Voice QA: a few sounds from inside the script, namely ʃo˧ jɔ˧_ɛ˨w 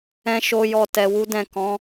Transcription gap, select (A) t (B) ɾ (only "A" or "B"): A